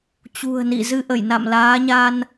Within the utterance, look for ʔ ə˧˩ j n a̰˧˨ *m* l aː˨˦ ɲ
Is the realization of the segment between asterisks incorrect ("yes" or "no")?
no